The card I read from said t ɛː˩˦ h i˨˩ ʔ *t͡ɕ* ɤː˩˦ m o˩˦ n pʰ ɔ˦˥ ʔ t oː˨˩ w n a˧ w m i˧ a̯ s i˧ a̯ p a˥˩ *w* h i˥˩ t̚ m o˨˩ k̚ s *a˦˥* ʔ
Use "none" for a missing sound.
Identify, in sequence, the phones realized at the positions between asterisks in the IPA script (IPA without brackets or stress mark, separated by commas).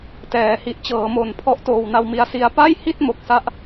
t͡ɕ, j, a˦˥